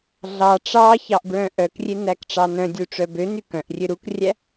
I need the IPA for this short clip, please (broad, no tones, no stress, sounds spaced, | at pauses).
ɮ ɑ ʈ͡ʂ ɑ ç ɑ ʔ b ɹ œ̃ ʔ œ k rʲ e n æ k ʈ͡ʂ ɑ n œ̃ dʲ u ʈ͡ʂ œ b ø n y k œ̃ ʔ rʲ ø ɾ u k rʲ æ